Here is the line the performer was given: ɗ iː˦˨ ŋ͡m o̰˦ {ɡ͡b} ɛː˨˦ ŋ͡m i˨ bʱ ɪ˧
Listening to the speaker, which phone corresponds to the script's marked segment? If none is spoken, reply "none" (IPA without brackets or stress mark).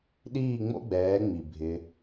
ɡ͡b